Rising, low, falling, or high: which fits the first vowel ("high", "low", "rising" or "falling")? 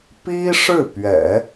high